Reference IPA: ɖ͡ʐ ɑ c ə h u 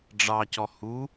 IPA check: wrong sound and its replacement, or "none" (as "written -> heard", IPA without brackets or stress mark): ə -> ɔ